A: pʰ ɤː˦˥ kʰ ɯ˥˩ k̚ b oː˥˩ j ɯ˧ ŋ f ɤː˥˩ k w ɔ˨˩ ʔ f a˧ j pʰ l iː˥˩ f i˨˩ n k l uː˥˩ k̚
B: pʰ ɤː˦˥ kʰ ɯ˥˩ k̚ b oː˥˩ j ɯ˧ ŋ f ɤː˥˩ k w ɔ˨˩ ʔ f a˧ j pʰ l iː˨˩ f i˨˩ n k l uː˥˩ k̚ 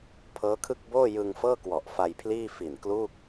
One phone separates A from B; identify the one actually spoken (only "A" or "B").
A